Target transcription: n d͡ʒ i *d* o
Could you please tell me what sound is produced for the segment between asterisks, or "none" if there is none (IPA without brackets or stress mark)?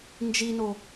n